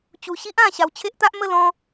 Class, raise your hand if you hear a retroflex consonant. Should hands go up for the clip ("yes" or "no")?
no